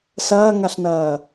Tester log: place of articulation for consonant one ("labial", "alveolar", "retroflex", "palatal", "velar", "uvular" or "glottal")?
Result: alveolar